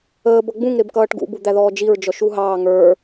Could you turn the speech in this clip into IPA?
əːb ʌɡ͡bũŋ ɾɪbkʌːʈɡṵ bud̪æðɔːd͡ʒiɹ d͡ʒɔʃuɦɑː ŋə˞

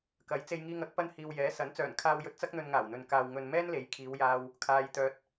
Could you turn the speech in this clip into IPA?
kɐ˨˥jt͡se˧jŋiː˧ŋɐ˨˥k̚ pɐ˧nhiː˨w jɛː˨˥ sɐ˨˥n t͡sœː˨˩nkʰaː˧wjɵ˧t̚t͡sɐ˥k̚ n̪ɵ˧nŋaː˨˩wn̪ɵ˨n kaː˧w ŋɵ˧n mɛː˥nle˨˥j kʰiː˨˧wjaː˧w | kʰaː˨jt̪œː˨t̚

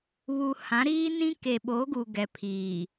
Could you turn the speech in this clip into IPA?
βu˨ hã˨˦ɾiː˦ nĩ˦ ke˨ɓo˨˦ɡu˨ ɡɛ˨ pʰiː˨

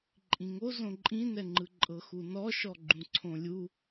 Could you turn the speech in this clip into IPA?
ǃʼĩŋo zõǃʼĩnɛŋ͡ǃɯ ǃʼɤxunɔ ʃɔɡ͡ǃũǀʰõlʲu

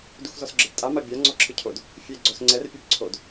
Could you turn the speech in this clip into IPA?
duxzɔsɡ͡ǁɤbtʼa mabʲa ŋ͡ǀɔǁʰɯcʰod | fʲe ɡ͡ǀɔsŋ͡ǀɛr pʲebǀʰod

